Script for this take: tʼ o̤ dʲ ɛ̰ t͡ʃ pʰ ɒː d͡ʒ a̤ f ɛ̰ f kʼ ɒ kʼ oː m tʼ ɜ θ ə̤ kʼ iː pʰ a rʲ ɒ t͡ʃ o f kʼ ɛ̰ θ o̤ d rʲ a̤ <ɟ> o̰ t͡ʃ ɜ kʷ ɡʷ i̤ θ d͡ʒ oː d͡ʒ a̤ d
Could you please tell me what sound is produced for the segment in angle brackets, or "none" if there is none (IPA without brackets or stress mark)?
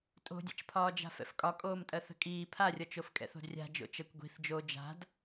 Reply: d͡ʒ